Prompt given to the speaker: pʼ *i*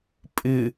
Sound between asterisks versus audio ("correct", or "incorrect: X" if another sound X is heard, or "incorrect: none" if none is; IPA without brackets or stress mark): incorrect: ɪ